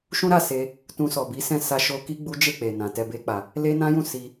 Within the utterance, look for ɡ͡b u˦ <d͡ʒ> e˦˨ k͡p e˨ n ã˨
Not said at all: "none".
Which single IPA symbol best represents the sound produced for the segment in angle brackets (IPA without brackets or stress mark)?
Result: d͡ʒ